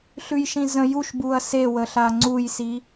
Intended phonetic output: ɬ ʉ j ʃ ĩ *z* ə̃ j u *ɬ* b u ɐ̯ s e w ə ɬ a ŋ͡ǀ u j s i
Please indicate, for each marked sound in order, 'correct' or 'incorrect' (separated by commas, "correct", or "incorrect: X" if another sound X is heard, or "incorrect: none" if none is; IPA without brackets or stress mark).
correct, incorrect: ʃ